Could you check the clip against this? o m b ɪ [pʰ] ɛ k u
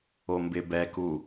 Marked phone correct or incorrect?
incorrect